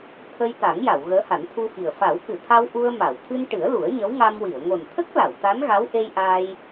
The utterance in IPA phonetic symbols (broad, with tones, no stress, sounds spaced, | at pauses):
t̪ʰ ə˧ j t̪ a˨˩˦ ŋ j a˨˩˨ w ɣ əː˧˥ h a˨˩˦ n t̪ʰ u˧ f i˨˩ ə̯ f a˨˩˦ w k ɨ˨˩˨ t̪ʰ a˧ w ʔ u˧ ə̯ m a˨˩˨ w t̪ʰ ɨ˧ n ʈ ɨ˨˩˦ ə̯ l u˨˩˦ ə̯ ɲ ə˧˥ w ŋ a˧ m w i˨˩˨ ə̯ ŋ o˨˩ n t̪ʰ ə˦˥ k̚ l a˨˩˨ w t̪ a˧˥ n ɣ a˧˥ w ʔ e˧ j ʔ a˧ j